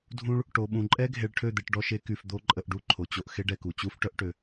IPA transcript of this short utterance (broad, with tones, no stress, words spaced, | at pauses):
dʱũ˧ɭ | ʈo˨ɓũ˨ǃʼɛ˦ ɡʱe˧ɭʈʰø˦˨d̪e˧ʈ ɖɔ˧ʃe˦ky˧f d̪o˦ǃʼə˧ʔɖu˦ ǃʰo˨t͡ɕo˧ʔ xe˦ɖɛ˧ku˨ t͡ɕu˦fʈœ˦ʔʈø˧